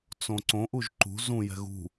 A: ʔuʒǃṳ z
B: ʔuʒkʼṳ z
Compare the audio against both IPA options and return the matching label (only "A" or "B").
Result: A